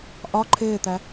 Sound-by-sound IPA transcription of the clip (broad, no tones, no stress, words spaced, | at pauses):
ʔɒ ǃʰɪːt̪æ